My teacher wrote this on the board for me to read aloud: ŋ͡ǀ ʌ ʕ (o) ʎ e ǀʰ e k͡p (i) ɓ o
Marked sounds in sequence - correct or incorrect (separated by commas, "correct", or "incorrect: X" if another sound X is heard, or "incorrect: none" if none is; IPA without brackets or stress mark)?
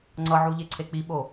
incorrect: u, correct